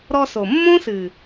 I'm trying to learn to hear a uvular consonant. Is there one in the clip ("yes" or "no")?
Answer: no